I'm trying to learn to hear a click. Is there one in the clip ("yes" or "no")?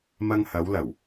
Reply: no